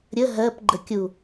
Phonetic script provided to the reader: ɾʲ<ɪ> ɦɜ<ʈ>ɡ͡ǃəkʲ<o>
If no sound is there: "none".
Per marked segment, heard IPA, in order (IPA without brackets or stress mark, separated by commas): ə, p, u